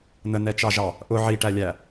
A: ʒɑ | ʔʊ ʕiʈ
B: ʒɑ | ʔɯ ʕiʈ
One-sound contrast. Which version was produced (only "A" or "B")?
A